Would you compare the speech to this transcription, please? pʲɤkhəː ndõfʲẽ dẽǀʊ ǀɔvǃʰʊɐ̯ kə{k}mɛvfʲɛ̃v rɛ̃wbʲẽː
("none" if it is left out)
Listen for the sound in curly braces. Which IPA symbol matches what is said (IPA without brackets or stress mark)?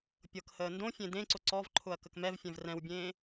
k